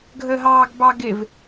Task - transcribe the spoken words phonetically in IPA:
ɡʱ ə ɦ ɑː ɡ b ɑ ɡ ɪ v

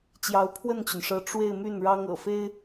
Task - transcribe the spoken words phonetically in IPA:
t͡ɕ j ɑ˧˥ ʊ̯ pʰ w ə˥˩ n t͡ɕ y˩ n ʂ ɤ˧˥ ʈ͡ʂ w e˥˧ ɪ̯ m y˥˩ n ɻ ɑ˥ ŋ ɤ̰˨˩ f e˥ ɪ̯

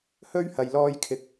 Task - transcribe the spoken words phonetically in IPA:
h ɵ˥ ɥ h ɐ˨ j l ɔː˧ j kʰ ɪ˨ k̚

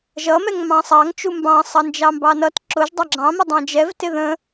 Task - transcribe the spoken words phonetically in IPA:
ʒ ʌ m ɛ ŋ m ɑ̃ sˤ ɑ ŋ t͡ʃ u m b ɑ̃ sˤ ʌ n d͡ʒ ɑ m b ɑ n ʌ t ǁ ʊ ʒ dˤ ɑ ɡ͡ǁ ɑ̃ m ə dˤ ɑ̃ d͡ʒ ɛ v t ɪ ð ə̃

